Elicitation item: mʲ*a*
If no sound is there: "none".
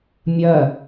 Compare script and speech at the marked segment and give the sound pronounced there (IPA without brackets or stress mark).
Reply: ɐ